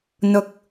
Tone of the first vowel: rising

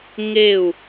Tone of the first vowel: falling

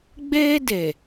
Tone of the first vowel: high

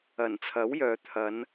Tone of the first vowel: low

